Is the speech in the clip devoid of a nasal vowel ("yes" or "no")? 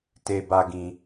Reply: no